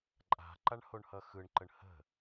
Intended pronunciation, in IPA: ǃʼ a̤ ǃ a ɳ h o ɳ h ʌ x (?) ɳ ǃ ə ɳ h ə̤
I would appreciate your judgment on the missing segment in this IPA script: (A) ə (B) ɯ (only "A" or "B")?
B